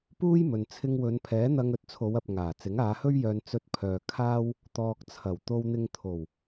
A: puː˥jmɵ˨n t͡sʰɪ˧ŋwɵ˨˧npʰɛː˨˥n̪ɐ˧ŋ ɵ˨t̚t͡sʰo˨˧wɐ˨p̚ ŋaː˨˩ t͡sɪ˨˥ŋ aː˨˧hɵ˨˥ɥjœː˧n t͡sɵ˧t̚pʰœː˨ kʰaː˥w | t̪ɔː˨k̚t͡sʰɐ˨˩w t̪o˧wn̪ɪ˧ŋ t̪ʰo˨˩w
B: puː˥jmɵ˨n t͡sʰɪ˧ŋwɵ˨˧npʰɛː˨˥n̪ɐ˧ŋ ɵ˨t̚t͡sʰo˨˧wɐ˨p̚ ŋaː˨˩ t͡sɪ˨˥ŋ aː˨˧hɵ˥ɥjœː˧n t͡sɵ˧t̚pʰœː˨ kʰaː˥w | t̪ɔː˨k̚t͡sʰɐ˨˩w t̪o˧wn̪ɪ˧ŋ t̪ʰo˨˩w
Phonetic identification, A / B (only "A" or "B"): B